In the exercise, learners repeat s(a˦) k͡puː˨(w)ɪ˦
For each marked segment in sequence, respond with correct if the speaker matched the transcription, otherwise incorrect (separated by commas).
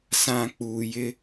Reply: incorrect, incorrect